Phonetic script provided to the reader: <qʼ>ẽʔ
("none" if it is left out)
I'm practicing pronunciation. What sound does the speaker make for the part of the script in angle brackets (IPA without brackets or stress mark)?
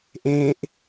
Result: ʔ